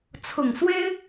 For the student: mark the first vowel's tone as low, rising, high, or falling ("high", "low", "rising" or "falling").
low